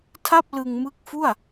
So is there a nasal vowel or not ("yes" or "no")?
no